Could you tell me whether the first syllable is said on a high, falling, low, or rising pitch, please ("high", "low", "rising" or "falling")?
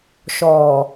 low